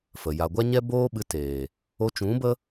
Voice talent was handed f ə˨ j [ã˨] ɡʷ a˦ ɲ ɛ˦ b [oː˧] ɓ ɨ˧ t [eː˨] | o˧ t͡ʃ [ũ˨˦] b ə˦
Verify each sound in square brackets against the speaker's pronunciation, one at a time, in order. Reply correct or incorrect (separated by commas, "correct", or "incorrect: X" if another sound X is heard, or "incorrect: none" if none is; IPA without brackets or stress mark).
incorrect: a˨, incorrect: oː˦, correct, correct